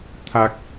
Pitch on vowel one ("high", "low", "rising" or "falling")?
low